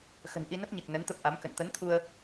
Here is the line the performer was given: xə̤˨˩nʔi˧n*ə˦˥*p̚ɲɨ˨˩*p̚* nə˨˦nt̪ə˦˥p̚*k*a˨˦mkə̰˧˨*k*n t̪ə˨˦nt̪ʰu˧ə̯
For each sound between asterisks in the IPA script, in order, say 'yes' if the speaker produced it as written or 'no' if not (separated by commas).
yes, no, no, no